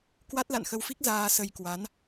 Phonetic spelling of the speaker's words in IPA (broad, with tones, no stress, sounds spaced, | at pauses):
k w a˦˥ t̚ l a̰˧˨ n x ə˧ w f i˦˥ k̚ z aː˧ s ə˧ j k w a˨˦ n